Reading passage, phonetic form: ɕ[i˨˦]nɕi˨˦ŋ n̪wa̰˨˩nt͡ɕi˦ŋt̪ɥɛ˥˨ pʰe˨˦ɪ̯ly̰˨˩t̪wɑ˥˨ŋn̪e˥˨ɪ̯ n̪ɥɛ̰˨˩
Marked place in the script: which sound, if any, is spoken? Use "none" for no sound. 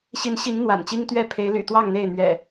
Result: i˨˦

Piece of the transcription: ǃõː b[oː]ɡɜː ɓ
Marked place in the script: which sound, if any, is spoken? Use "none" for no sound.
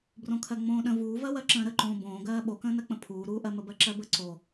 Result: õː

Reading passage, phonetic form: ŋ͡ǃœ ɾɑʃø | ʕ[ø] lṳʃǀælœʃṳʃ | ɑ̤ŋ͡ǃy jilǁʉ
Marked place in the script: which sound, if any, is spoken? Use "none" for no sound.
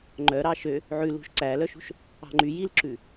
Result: ʉ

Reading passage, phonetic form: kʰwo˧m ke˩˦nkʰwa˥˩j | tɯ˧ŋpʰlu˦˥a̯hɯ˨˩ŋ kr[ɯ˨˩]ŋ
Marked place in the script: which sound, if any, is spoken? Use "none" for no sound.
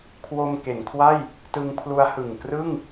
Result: ɯ˥˩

